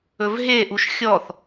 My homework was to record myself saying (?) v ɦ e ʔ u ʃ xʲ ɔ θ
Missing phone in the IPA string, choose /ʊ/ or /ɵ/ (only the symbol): ɵ